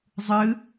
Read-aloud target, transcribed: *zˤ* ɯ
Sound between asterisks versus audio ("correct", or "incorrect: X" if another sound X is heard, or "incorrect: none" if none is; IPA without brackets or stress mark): correct